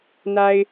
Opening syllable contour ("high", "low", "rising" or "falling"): low